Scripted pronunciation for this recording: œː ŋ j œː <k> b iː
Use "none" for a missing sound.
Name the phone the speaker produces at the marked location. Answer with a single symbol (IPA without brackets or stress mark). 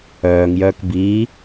k